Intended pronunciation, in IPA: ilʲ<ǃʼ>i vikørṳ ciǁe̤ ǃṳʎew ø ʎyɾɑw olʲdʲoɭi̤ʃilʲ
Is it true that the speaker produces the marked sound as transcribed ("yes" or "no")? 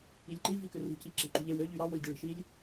no